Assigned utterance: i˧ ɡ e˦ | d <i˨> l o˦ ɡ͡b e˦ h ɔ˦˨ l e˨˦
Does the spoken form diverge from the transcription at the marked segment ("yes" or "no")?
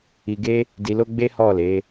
yes